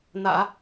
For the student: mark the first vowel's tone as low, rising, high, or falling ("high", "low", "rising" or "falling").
low